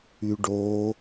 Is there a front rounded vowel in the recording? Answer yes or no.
yes